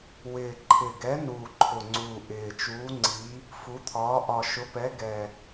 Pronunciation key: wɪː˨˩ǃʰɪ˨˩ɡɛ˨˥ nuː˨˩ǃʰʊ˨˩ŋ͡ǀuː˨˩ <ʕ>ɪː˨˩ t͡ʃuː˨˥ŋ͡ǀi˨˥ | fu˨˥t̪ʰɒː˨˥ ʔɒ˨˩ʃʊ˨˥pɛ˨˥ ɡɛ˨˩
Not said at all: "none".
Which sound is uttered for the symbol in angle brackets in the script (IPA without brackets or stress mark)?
ʔ